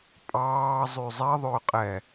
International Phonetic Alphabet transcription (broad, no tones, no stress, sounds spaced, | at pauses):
pʼ ɑː zˤ y zˤ ɛ ðˤ ʏː qʼ ɛ